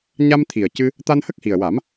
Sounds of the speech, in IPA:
ɲa˧m t̪ʰi˨˩ə̯cɨ˧ | t̪a˧nhə˦˥k̚hi˨˩ə̯wa˨˩˦m

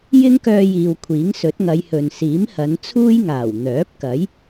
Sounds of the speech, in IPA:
jɪ˥ŋkœː˧jiː˨w kʷʰiː˨˥ŋsɵ˨˥t̚ŋɐ˨˧jhɵ˨n siː˨˥mhɐ˨˧nt͡sʰuː˥jŋaː˨˩w n̪œː˨˥p̚kɐ˨˥j

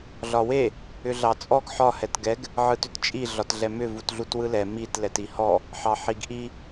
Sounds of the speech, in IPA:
ɮɒwe | ʏɮɑt͡sʼɔɡ ħɒ hɛtɡɛɡ | ʕɯtʏtt͡ʃʼi ɮɒtɮɛmʏ vutɮutwɯlɛ mit lɛtihɔ | ħɑħiɡʔi

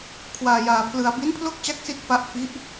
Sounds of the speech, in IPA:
kʰwaː˧jaː˧pʰlɯ˧a̯ bi˦˥npʰlo˥˩k̚ t͡ɕa˥˩k̚si˥˩t̚fa˦˥ʔ fi˦˥ʔ

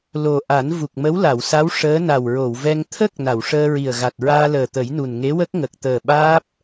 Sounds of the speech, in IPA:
lo˨˩ ʔa˨˩˦n vu˨˩k̚mə˧˥wla˨˩˨wsa˧˥w ʂəː˧˥ na˨˩wɹo˨˩˨wvɛ˧ŋ t̪ʰə˦˥k̚ na˨˩˨wʂəː˧ɹi˨˩ə̯ɣa˨˩t̚ ɹaː˧ləː˨˩t̪ə˨˩˦jnu˨˩n ŋe˧˥wə˦˥k̚ŋə˨˩k̚ t̪əː˨˩ɓaː˦˥p̚

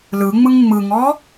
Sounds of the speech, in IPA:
lɯŋ͡mɯŋ ŋ͡mɯŋɔ

